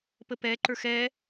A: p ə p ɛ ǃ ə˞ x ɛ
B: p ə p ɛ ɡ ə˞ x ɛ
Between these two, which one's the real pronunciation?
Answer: A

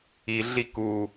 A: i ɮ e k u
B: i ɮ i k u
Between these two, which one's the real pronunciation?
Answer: B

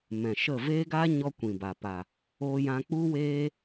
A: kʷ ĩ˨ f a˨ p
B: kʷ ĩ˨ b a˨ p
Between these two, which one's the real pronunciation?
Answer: B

